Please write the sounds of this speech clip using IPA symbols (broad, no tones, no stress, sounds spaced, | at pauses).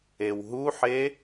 e w ɦ u ħ e